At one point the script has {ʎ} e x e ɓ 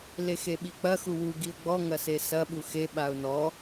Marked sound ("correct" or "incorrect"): incorrect